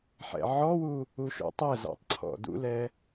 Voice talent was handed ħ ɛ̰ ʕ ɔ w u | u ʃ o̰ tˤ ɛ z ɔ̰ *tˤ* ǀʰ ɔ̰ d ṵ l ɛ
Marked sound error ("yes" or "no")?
no